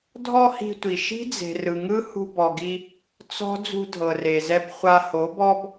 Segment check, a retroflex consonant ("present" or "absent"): absent